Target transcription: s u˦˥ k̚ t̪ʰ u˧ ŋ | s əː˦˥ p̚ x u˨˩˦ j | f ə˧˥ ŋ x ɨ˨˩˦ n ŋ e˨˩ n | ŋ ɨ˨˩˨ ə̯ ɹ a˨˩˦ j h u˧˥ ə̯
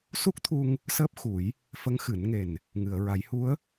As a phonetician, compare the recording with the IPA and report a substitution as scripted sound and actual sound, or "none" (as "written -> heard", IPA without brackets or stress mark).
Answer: none